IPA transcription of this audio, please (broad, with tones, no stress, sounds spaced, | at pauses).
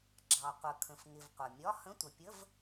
ɡ͡ǁ ɑ˩ qʷ ə˩ kʰ ə̃˩ f ŋ ɪ˩ v qʷ ʌ˩ mʲ ɒ˧˥˧ h ə̃˧˥˧ tʷ ə˩ pʲ ə˧˥˧ v